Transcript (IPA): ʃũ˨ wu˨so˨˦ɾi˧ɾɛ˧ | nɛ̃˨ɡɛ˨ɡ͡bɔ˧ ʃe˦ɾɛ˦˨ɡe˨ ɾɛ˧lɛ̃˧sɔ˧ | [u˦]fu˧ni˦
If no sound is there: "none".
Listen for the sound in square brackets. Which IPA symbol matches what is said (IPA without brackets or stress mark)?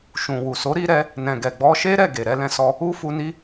u˦